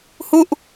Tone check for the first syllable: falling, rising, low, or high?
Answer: falling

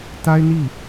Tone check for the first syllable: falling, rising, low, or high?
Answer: high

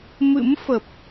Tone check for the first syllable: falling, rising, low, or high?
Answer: rising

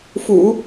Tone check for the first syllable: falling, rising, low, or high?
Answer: low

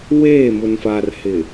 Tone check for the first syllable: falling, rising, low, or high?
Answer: falling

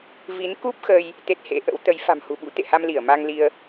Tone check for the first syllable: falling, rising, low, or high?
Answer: rising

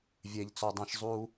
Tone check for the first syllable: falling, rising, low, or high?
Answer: high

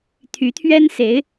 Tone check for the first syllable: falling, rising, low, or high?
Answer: rising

